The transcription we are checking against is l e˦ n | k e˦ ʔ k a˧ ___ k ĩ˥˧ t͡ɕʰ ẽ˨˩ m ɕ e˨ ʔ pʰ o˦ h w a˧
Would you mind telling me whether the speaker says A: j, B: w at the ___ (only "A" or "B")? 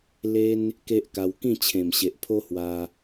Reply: B